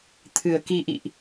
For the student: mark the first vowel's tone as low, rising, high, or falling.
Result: low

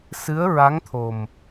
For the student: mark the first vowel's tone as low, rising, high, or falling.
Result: rising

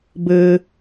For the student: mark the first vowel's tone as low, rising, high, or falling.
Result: high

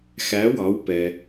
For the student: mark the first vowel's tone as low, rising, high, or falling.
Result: rising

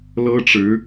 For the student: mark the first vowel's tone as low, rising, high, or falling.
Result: high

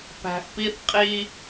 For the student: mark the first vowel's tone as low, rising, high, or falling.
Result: low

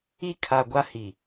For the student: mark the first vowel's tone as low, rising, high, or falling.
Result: high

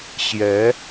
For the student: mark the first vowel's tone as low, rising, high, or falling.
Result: rising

